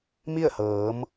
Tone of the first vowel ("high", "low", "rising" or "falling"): falling